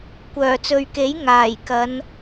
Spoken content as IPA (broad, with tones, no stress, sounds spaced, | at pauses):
kʷ œː˨˩ t͡s ɵ˨ ɥ k e˨˥ j ŋ aː˨˩ j k ɐ˨˧ n